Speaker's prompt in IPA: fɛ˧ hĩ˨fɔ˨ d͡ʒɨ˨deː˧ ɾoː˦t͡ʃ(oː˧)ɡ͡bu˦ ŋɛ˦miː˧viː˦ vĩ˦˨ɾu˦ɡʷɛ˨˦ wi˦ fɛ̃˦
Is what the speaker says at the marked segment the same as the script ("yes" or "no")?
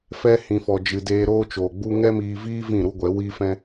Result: no